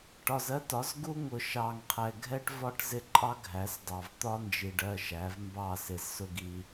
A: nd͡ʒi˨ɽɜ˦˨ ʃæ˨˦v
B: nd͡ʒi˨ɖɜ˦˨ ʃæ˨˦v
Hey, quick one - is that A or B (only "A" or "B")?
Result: B